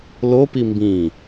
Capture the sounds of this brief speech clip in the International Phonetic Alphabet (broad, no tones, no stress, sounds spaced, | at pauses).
l o p i m b ĩ